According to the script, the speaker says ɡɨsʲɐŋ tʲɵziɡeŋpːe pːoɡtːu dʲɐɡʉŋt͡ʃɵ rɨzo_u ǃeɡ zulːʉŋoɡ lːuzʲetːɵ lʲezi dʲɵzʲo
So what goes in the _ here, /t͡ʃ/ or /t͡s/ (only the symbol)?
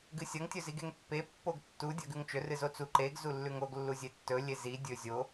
t͡s